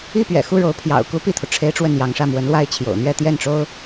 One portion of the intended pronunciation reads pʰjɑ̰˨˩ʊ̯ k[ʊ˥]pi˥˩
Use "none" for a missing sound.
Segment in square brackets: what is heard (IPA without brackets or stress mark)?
u˥